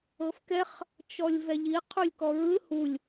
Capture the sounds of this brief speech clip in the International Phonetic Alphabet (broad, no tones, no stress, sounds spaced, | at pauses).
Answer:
ɤ f k ɛ χ | t͡ʃ ɔ lʲ v ɛ ʎ i qʰ u lʲ k ɔ ɹ ɯ h u lʲ